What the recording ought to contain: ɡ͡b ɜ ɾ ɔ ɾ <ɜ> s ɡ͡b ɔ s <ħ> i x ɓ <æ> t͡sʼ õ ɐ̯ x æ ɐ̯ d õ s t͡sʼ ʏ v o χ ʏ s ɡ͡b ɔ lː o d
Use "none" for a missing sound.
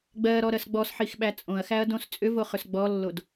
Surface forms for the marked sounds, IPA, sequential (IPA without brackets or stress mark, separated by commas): ɜ, ħ, æ